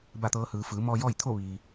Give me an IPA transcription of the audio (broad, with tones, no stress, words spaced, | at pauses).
ba˥˨t̪ɤː˧˥hɯː˩˧ fɯː˩˧mɔː˧ jɔː˥˨jt̪ʰo˥˨ ʋiː˩